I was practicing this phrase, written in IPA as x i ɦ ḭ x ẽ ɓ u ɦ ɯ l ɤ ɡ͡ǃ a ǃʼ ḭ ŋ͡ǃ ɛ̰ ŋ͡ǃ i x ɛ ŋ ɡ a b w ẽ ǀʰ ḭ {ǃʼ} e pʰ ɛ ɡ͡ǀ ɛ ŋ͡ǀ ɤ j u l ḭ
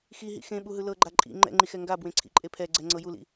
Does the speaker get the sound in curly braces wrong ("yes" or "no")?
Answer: no